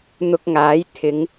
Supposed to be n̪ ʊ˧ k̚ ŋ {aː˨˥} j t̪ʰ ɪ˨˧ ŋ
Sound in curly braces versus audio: correct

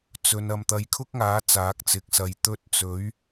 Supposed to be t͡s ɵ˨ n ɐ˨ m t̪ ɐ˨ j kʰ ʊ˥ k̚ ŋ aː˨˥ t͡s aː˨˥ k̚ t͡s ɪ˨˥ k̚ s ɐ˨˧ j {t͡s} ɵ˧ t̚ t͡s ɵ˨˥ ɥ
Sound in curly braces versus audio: incorrect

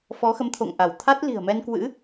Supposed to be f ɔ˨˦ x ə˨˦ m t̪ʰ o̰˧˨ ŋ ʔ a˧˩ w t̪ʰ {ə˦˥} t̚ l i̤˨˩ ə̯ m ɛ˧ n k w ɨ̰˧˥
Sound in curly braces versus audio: incorrect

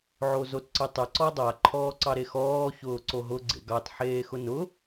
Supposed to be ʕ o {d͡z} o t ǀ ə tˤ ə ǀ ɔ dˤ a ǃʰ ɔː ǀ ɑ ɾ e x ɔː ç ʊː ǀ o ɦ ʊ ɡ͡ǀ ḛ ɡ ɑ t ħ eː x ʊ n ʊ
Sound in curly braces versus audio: incorrect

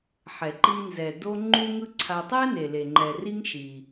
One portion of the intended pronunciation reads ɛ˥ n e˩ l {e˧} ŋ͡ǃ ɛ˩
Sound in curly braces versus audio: incorrect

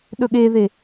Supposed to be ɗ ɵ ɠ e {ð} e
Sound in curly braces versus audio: correct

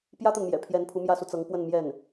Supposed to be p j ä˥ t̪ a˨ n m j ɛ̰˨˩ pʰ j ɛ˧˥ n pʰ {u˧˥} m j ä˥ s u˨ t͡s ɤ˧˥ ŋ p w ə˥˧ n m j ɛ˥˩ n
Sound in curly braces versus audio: correct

